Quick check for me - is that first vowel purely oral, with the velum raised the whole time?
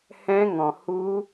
no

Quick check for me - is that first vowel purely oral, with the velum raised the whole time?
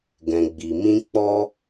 no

